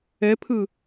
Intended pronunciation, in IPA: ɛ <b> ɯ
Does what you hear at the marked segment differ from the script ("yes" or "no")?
yes